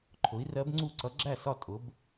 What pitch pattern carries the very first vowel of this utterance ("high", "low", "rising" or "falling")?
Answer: rising